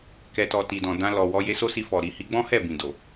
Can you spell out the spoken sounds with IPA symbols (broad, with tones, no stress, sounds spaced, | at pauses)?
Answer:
k ɛ˨ t ɔ˨ t i˨ d ɔ̃˨ d ã˧ l ɔ˨ w ɔ˧ j e˧ s o˦ s i˧ f ɔ˨ ɾ i˨ h i˨˦ ɡ͡b ɔ̃˦ h ɛ˦˨ b ĩ˨ d o˨